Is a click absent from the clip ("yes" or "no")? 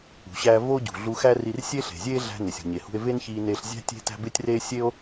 yes